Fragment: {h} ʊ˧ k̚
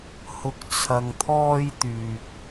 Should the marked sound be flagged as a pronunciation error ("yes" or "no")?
no